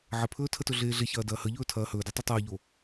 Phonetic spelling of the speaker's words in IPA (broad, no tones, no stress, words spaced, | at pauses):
ʕəpʰɵːtʰətɵ ɮeːɮe çɐːdɐːhəʎɵː tʰɐːhɵːdɐ tˤotˤɐːʎoː